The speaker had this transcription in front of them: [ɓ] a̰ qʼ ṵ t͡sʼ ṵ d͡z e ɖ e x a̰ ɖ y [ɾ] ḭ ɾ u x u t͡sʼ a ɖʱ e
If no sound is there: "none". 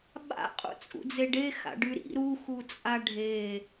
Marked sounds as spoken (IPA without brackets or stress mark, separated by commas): ɓ, ɾ